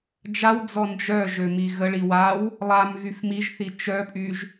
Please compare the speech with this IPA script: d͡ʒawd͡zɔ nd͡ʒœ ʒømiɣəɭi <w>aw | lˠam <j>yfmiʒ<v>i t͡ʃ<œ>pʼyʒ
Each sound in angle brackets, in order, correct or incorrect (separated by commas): correct, incorrect, incorrect, correct